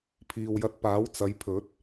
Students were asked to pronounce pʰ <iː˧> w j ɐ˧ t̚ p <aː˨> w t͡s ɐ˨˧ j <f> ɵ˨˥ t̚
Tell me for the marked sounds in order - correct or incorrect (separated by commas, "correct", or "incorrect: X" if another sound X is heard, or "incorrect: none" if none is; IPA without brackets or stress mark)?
incorrect: iː˨, incorrect: aː˨˥, incorrect: pʰ